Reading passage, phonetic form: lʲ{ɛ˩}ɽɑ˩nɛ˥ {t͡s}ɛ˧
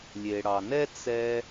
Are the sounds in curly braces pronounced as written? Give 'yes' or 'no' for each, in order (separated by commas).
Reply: no, yes